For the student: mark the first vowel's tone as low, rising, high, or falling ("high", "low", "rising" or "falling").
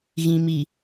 low